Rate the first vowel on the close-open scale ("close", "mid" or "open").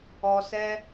mid